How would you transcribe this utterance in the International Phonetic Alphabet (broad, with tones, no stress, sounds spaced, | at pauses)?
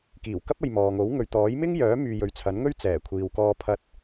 k iː˨˩ w k ɐ˥ p̚ ɐ˨ j m ɔː˨ ŋ o˨˥ w ŋ ɵ˨ ɥ t̪ ɔː˨˥ j m ɪ˥ ŋ j œː˨˥ m yː˨ j ɵ˨ ɥ t͡sʰ ɐ˨˥ n ŋ ɵ˥ ɥ t͡s ɛː˨˩ kʷʰ iː˨ w k ɔː˧ pʰ ɐ˧ t̚